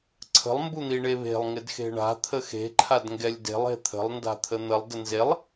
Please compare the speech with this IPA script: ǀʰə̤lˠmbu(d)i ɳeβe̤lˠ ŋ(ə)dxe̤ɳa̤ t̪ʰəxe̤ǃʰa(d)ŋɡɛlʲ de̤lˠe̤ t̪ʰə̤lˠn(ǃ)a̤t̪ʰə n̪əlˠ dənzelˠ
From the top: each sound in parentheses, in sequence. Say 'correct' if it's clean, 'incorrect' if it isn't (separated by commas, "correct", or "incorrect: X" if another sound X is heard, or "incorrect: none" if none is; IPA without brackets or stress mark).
incorrect: n̪, incorrect: ɪ, correct, incorrect: d